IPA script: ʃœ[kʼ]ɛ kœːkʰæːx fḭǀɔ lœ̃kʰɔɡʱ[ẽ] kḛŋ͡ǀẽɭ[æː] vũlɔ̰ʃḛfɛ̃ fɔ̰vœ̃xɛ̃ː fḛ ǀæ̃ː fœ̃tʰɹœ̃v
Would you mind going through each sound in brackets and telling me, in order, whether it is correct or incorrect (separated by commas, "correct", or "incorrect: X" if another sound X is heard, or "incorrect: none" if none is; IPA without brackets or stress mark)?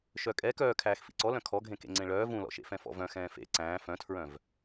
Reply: correct, correct, incorrect: œː